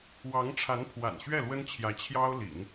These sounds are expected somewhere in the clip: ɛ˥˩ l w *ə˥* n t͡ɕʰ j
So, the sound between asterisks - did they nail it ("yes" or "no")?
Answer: yes